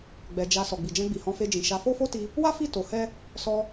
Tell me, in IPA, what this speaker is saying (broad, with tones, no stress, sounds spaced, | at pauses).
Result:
ɡ͡b ɛ˨ d͡ʒ a˨ s ɔ˨ ɡ͡b i˨ d͡ʒ ɛ̃˧ ɡ͡b i˨ h ɔ̃˧ f e˧ d͡ʒ ĩ˨ ʃ a˨˦ f o˦ f o˦ t i˧ | w a˦ f i˦˨ t o˨˦ h ɛ˦ | s ɔ˧